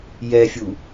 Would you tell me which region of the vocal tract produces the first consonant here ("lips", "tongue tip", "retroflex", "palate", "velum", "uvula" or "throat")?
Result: palate